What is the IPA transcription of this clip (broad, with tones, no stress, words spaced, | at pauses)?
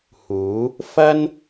huː˨˥ | fɐ˥n